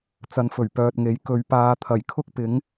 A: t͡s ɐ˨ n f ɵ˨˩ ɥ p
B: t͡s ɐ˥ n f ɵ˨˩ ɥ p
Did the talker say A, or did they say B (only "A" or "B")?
A